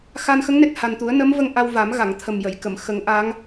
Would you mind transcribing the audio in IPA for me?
x a˧ n x ə˧˥ ŋ n e˨˩ t̚ h a˨˩ n t̪ u˨˩˦ ə̯ n ə˧˥ m v ə˧ ŋ ʔ a˧ w v a˨˩˦ m ɣ a˨˩˨ ŋ t̪ʰ ə˨˩ m j ə˨˩˨ j k ə˨˩˨ m x ə˨˩˦ ŋ ʔ a˧˥ ŋ

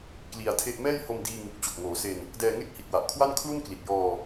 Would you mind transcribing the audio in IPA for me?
k l i˧ a̯ tʰ e˥˩ ʔ m ɛː˥˩ j h o˧ m d iː˧ ŋ u˨˩ k̚ t͡ɕ o˨˩ k̚ ŋ oː˩˦ s e˧ n | d ɛː˧ ŋ e˥˩ k̚ h i˨˩ t̚ w a˨˩ ʔ kʰ w a˥˩ n kʰ l u˥˩ n k l i˨˩ t̚ j ɔː˧

